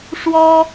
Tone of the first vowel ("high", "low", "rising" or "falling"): high